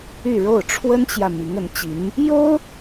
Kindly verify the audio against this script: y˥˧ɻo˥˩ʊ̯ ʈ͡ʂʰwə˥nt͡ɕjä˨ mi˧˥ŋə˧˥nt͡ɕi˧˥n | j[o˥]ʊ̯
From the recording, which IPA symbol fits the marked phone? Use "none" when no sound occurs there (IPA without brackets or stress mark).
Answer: o˥